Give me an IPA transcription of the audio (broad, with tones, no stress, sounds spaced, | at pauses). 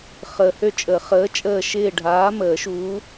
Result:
χ əː˨ h ø˦˨ t͡ʃʼ ə˨˩˦ χ əː˨˥ t͡ʃʼ əː˦˨ ʃ ɪː˦˨ ɖʱ aː˨˥ m əː˨˩˦ ʃ u˨˥